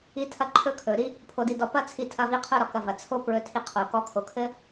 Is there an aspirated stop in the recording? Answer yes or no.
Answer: yes